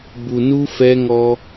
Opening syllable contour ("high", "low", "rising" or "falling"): low